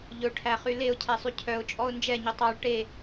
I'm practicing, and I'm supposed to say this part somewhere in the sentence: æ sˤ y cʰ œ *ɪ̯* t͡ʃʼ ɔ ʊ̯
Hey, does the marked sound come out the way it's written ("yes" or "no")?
no